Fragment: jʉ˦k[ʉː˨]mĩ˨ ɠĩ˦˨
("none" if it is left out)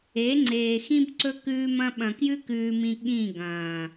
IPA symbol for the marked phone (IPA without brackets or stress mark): ʉː˨